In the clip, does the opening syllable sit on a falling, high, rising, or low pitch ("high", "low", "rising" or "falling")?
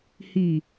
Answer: low